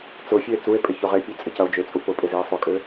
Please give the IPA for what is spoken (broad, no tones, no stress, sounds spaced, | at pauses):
t͡s ʊ fʲ ø e̯ t͡s u e̯ pʼ ɪ ç ʊ ʁ e pʲ ø t͡sʼ ɪ c ɐ o̯ d͡ʒ ø t͡sʼ u p ʊ pʼ ɪ z i e̯ sˤ ʊ kʼ ø